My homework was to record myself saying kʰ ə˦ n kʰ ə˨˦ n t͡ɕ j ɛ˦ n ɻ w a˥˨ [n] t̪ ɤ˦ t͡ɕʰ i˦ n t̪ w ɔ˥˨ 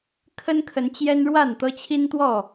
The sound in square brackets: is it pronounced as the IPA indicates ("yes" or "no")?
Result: yes